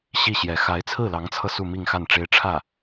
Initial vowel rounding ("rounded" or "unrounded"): unrounded